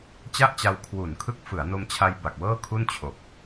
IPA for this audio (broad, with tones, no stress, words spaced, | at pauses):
t͡ɕa˥˩ʔt͡ɕa˧w kʰwu˨˩nkʰɯ˦˥k̚ fɯ˩˦a̯no˧mt͡ɕʰa˧j ba˨˩k̚wɤː˥˩kʰu˥˩n t͡ɕʰo˨˩k̚